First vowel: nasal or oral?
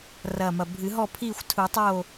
oral